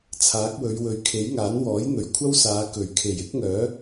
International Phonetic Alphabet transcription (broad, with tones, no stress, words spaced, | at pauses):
t͡sʰaː˨˥k̚ wɵ˨˧ɥwɵ˨ɥkʰe˨˥jŋaː˨˥n wɔː˨˥jn̪ɵ˨˩ɥkʷʰɐ˥wsaː˨˧ kɵ˨˩ɥkʰe˨˩jɪ˥k̚ŋœː˨˥